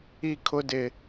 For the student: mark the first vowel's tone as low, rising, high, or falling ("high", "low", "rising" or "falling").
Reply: falling